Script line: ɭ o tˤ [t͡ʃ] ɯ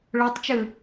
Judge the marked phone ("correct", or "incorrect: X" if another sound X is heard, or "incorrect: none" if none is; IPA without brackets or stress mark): correct